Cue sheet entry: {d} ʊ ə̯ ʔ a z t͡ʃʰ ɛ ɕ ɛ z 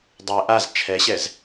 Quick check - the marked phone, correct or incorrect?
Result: incorrect: dˤ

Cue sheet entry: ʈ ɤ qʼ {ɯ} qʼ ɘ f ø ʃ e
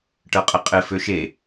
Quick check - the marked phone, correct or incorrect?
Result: incorrect: ə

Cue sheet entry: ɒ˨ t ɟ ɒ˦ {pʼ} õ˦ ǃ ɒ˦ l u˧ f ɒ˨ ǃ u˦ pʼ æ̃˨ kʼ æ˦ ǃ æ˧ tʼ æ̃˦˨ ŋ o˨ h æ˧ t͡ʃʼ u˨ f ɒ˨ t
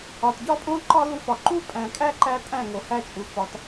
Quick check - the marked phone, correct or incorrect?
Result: correct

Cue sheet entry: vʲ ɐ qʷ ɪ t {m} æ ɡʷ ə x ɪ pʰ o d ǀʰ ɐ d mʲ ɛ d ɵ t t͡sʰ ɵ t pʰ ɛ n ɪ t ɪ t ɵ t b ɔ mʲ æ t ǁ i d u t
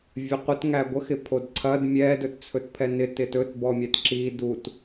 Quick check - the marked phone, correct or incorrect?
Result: incorrect: ŋ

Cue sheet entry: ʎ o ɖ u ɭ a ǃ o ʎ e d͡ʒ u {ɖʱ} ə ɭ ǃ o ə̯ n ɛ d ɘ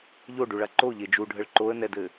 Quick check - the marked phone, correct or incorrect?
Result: correct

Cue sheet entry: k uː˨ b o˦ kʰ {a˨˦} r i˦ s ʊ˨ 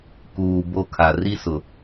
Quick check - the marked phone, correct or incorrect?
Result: incorrect: a˨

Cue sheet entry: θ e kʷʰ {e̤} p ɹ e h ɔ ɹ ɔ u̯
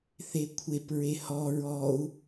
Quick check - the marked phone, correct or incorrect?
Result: incorrect: e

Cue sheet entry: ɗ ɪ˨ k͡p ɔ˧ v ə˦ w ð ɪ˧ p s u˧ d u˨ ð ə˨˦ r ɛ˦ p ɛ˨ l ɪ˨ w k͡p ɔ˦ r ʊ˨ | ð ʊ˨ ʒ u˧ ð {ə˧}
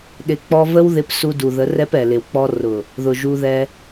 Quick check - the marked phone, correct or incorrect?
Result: incorrect: ɛ˧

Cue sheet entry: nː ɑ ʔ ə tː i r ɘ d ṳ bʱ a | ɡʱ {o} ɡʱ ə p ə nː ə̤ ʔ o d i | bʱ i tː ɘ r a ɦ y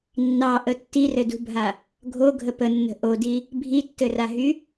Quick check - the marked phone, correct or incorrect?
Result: correct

